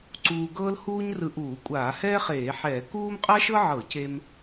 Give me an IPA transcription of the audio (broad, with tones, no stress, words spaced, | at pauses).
ǀuː˧ɡɤː˥lhuː˥ɲ rɯ˧ʔuː˧˩˧kʷʼaː˧˩˧ hɛː˥χeː˧˩˧ħɛː˧˩˧ kuː˥m qʼa˥ʃɤ˥ʕɤ˧˩˧ce˧m